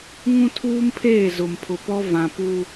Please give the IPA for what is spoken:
ŋ ũ˦ tʰ uː˦ m pʰ eː˦˨ z ʊ˨ m pʰ ʊ˨ p ɔ˦ v ã˨ p u˦

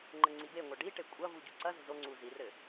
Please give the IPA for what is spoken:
ŋ͡ǃ ɘ ŋ͡ǀ i b e ŋʷ a ɖ i ʈ e kʷʼ ɐ v u ɟ u ǀ ɐ z o̤ z o ŋ͡ǀ u z i r ɘ

